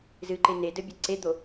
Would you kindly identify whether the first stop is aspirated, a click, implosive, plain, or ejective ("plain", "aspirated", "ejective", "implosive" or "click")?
click